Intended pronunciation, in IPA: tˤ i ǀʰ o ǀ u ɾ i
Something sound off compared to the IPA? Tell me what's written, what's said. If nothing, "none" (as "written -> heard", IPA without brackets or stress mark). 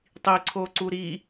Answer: none